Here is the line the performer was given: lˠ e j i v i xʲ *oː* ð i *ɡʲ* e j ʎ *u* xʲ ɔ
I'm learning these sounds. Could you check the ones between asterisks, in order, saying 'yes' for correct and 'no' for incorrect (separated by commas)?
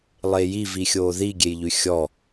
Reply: yes, yes, no